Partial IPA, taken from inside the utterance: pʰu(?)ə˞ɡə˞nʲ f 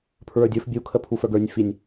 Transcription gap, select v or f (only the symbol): f